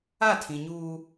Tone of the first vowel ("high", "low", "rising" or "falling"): falling